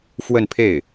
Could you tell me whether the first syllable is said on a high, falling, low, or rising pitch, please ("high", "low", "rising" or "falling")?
falling